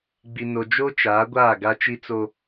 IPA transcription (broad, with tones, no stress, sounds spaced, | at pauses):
ɡ͡b i˨ n o˨ d͡ʒ o˦ t͡ʃ aː˨˦ ɡʷ aː˦˨ ɡ a˦ t͡ʃ i˦ t͡s o˦